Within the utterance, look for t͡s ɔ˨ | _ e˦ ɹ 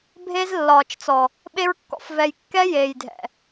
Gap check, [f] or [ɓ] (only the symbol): ɓ